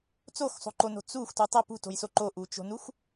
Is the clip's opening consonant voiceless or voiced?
voiceless